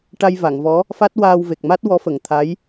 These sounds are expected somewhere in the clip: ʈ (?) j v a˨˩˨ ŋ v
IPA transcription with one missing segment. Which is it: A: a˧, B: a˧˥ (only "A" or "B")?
A